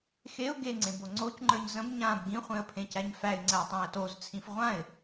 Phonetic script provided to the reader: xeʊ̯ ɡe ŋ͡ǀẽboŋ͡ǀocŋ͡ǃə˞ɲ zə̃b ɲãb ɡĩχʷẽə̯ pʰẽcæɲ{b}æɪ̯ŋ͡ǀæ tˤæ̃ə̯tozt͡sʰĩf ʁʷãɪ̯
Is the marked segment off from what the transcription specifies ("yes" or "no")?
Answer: yes